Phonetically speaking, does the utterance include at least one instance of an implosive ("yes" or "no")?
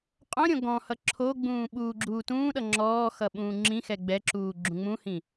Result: yes